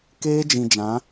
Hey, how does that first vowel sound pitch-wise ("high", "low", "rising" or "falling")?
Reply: high